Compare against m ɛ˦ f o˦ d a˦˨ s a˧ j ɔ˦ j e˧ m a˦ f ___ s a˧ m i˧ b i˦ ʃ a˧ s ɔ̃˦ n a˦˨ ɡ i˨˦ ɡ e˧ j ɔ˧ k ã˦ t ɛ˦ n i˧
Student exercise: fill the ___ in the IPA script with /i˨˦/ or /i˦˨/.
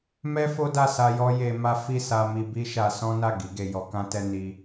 i˦˨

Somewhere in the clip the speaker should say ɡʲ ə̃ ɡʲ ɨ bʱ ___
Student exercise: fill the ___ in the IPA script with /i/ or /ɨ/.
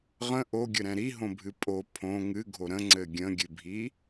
i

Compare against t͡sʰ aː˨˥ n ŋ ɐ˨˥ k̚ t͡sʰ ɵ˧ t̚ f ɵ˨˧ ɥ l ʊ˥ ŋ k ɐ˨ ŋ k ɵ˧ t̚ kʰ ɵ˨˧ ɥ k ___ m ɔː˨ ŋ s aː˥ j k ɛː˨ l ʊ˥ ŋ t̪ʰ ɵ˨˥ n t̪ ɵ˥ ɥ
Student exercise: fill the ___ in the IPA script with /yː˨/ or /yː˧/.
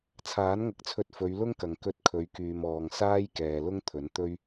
yː˨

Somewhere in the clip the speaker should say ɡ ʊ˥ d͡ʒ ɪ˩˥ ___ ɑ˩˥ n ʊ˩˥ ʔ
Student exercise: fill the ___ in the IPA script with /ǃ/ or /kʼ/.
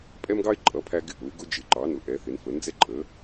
ǃ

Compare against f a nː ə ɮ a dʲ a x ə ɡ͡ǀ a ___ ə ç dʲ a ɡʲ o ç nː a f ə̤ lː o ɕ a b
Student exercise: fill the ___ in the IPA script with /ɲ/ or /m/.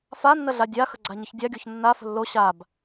ɲ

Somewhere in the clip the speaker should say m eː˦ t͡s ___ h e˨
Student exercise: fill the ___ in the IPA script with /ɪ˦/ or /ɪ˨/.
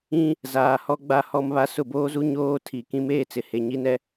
ɪ˨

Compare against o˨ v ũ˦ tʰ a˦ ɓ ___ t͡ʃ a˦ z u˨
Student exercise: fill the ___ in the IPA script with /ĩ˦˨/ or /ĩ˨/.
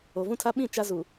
ĩ˦˨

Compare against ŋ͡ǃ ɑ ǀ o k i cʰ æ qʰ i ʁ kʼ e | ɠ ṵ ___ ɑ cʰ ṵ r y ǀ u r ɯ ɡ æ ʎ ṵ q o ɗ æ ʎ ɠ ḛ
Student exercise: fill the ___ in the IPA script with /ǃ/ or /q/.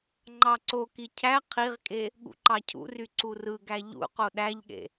ǃ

